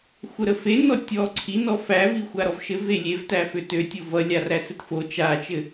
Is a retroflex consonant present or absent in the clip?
absent